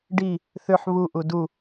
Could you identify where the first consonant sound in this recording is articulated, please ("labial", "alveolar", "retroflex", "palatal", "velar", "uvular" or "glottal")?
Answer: retroflex